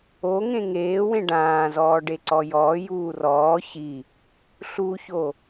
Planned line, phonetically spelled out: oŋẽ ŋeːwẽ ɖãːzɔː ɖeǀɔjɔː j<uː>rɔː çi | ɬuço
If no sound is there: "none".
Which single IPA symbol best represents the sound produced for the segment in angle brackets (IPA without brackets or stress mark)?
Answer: uː